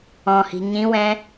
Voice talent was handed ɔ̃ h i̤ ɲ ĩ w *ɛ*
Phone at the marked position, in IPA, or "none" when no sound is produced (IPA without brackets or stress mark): ɛ̃